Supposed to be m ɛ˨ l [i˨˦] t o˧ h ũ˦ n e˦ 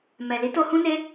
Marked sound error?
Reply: no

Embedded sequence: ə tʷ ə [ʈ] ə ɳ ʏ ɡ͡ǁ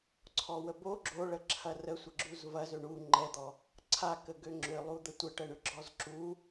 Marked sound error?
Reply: no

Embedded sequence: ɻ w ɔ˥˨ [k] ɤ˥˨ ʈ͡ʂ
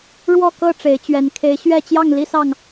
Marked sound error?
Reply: no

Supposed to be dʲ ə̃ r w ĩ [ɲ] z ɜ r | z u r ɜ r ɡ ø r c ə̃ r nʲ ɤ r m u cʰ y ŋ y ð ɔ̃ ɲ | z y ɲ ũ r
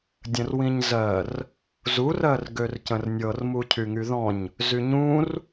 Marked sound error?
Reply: no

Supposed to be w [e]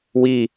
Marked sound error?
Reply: yes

